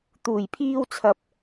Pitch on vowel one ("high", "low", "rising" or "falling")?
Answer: low